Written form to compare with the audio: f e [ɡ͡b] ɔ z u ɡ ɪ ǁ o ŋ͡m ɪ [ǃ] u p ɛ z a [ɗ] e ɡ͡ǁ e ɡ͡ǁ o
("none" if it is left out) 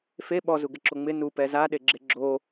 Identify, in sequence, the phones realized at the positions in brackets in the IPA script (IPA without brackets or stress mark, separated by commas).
ɓ, n, ɗ